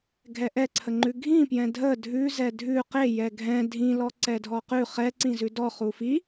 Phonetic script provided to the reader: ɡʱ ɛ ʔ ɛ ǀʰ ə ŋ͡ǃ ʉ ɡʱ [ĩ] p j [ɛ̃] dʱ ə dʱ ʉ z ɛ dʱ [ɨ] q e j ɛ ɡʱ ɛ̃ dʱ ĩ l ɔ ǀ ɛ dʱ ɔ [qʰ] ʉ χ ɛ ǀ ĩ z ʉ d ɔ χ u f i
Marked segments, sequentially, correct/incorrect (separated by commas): correct, correct, incorrect, incorrect